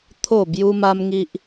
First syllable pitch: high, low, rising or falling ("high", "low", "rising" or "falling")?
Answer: falling